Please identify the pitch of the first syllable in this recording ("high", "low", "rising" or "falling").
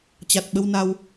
low